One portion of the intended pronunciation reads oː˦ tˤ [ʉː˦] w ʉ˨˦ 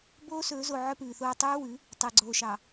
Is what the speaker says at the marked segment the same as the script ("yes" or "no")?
yes